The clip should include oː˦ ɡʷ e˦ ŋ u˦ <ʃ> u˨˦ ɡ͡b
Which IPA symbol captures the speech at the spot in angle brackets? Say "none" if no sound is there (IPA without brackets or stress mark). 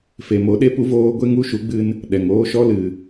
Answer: ʃ